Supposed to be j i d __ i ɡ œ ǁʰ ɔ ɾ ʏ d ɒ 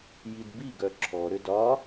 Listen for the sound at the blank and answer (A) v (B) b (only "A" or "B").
B